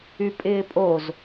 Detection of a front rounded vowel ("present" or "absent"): present